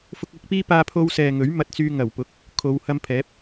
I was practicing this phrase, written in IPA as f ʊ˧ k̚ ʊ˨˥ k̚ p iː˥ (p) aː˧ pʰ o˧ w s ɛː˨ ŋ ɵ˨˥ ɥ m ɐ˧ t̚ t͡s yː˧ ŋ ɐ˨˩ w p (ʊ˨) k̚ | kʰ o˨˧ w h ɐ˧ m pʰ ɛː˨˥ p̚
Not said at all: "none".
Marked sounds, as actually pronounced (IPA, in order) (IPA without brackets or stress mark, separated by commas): p, ʊ˨˥